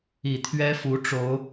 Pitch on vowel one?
low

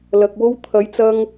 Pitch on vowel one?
low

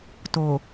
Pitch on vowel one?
low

